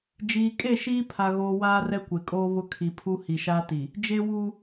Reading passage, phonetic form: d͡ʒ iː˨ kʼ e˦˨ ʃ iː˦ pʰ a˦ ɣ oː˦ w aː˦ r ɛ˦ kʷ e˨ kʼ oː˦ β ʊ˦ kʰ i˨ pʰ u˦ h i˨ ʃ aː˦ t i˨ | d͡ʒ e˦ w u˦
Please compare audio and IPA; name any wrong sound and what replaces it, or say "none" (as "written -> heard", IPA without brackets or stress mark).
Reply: none